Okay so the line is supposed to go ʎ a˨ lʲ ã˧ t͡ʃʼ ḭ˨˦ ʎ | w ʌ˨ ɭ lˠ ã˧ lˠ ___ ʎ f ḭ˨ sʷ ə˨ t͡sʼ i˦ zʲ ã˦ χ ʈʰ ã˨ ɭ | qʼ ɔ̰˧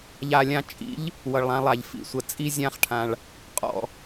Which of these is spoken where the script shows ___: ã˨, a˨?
a˨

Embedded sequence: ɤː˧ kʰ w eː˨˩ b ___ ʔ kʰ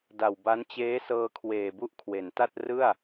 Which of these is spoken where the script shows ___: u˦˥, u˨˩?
u˦˥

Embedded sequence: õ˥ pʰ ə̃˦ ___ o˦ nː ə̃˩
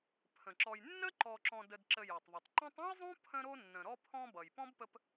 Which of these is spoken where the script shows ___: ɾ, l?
ɾ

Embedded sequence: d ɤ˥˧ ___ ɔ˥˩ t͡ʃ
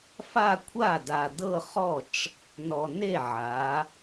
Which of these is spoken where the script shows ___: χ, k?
χ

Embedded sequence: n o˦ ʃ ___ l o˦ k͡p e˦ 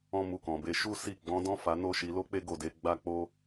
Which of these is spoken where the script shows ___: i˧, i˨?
i˧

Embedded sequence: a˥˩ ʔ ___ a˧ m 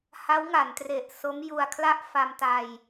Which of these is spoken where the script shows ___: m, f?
f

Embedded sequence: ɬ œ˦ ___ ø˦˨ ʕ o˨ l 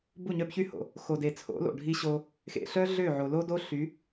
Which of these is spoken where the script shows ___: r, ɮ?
ɮ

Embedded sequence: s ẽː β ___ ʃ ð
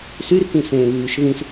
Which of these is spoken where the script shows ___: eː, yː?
yː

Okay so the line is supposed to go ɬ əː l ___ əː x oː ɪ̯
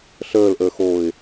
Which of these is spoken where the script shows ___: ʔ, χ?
ʔ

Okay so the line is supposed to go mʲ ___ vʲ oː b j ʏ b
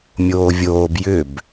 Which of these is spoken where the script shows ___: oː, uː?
oː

